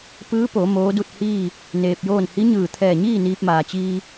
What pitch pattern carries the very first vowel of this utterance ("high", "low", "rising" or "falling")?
rising